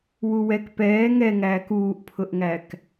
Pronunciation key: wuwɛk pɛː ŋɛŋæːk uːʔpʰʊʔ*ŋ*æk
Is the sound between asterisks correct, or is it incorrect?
correct